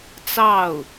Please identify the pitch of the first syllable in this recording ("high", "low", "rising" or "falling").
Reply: falling